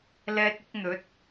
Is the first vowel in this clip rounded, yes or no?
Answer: no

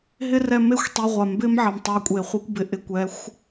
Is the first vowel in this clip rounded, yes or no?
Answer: no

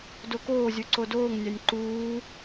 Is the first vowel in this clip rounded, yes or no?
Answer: yes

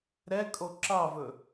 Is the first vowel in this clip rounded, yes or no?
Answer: no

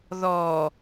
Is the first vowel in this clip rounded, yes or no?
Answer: yes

